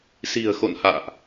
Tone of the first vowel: low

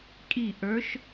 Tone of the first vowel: falling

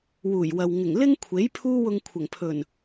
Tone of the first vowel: low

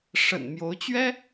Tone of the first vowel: low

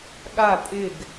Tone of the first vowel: falling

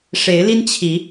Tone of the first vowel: rising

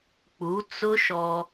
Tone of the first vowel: rising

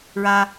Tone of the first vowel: high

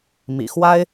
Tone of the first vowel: low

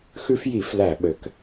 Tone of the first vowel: high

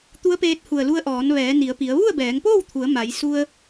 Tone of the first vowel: rising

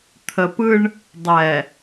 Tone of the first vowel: low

